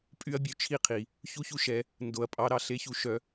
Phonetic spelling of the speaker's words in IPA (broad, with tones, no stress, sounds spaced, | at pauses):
pʼ y˦ ɐ̯ bʲ ø˧ t͡ʃʰ i˦ qʰ i˨ | ç u˦ ç u˦ ʃ ɛ˧ | n d o˨ ɐ̯ pʼ ɑ˨˦ ɾ ɑ˧ ɬ e˧ ç u˧ ʃ œ˧